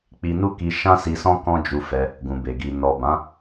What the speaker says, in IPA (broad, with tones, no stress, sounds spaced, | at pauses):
k͡p i˧ n u˦ k i˧ ʃ ã˦ s i˧ s ɔ̃˦ k ɔ̃˦ d͡ʒ u˧ f ɛ˧ | ɡ ũ˨ b e˨ ɡ i˨ n ɔ˨ b ã˨˦